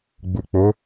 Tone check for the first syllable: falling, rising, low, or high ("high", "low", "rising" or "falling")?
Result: low